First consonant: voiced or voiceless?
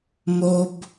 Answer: voiced